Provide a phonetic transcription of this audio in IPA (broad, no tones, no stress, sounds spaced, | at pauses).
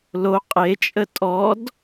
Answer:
l o qʼ e t͡ʃʼ ə tʼ ɔ d